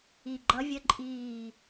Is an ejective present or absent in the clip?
present